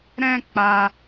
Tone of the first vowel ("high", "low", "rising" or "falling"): high